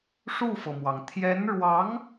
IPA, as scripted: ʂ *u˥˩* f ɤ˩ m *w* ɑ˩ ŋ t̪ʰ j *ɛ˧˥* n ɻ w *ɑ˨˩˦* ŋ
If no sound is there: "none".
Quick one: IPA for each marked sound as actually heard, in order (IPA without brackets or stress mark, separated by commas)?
u˥˩, w, ɛ˧˥, ɑ˧˥